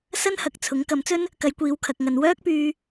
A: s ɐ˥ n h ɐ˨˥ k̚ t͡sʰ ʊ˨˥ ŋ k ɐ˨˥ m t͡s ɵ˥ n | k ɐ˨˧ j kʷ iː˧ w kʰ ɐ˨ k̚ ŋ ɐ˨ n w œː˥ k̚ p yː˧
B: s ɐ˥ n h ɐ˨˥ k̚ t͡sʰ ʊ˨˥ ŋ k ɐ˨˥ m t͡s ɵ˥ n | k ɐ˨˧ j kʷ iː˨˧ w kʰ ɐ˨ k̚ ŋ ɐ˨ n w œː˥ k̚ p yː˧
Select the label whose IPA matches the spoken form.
B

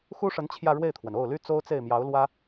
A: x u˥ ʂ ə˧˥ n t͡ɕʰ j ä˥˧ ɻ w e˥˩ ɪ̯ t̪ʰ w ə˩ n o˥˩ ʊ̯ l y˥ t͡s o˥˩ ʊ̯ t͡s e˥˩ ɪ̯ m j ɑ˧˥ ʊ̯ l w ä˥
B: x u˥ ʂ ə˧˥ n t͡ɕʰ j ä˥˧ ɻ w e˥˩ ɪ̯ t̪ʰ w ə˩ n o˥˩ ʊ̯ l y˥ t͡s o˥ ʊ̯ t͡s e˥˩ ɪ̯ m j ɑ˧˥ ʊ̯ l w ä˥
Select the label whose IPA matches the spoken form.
B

